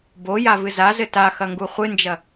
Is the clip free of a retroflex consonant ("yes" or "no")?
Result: yes